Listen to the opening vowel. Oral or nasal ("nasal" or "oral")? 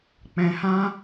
nasal